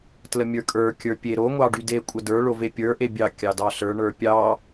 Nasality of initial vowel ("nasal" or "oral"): oral